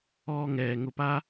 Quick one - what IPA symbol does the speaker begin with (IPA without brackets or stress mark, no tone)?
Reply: ɔː